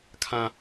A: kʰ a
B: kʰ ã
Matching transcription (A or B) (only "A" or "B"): B